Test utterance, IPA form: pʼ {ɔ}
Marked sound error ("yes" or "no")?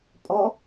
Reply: no